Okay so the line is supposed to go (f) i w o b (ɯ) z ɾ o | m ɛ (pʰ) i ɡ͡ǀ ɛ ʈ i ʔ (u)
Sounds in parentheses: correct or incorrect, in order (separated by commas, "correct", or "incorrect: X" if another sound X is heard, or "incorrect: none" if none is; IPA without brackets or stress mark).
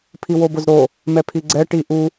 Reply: incorrect: pʰ, incorrect: ʊ, correct, correct